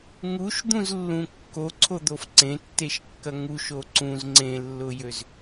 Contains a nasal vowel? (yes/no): yes